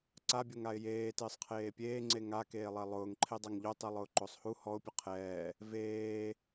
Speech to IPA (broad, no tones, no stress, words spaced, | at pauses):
ǀabʲoŋaɪ̯ jeːtɪːsˤqʰeː pʲeːŋ͡ǀe ŋakeːlˠɛ lˠʊːŋǃʰedˤaŋ ʎotˤilˠʊːǃosˤ hu hɔʊ̯pʲʊ qʰɛː | veː